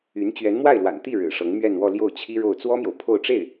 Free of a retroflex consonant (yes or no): no